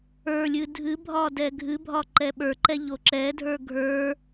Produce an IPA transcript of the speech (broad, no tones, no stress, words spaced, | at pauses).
ə˞lʲɨ dʱɨbʱɒ dɛɡʱɨbʱɒ ǃɛɓə˞ǃɛ ʎoǁɛdʱə˞ ɡʱə˞